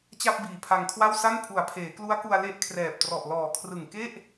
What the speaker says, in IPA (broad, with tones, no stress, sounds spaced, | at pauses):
t͡ɕ a˥˩ p̚ b iː˨˩ pʰ a˧ ŋ kʰ w a˥˩ w s a˥˩ n pʰ u˩˦ a̯ pʰ eː˩˦ k l u˦˥ a̯ k u˧ a̯ l e˦˥ ʔ kʰ r ɛː˨˩ p̚ t r ɔ˨˩ ʔ l ɔː˨˩ kʰ r ɯ˨˩ ŋ k e˥˩ ʔ